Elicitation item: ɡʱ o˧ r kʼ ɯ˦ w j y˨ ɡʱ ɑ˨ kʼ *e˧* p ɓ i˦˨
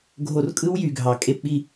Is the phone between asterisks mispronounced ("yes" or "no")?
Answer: no